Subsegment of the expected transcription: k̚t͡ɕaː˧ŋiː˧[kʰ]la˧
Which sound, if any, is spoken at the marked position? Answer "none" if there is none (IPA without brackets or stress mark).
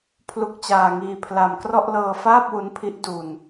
pʰ